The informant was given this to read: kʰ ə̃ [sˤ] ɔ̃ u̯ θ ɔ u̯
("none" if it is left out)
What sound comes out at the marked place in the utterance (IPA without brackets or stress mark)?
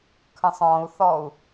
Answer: sˤ